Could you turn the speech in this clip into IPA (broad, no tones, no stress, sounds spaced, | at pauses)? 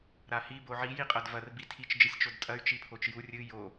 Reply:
ɾ a h i b o ʕ i j i qʼ ɐ d v ɐ r b i tʰ i t͡ʃ d͡ʒ ɨ sʲ t͡ʃ o d tʼ ɐ y̯ t͡ʃ i pʰ o t͡ʃ j u rʲ ɨ j o